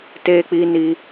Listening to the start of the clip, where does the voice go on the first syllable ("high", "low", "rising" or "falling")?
high